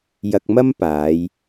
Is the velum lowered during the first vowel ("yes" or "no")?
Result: no